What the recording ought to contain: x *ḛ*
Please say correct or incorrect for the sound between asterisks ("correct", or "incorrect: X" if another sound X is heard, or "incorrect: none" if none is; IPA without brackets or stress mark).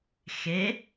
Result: incorrect: e